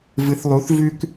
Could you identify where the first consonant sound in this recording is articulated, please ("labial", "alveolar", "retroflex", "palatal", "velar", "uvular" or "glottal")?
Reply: labial